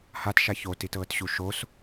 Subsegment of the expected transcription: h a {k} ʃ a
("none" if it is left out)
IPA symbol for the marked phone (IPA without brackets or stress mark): t